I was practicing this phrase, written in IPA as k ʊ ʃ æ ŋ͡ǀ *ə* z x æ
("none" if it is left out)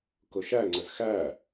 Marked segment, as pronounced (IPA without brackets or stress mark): ə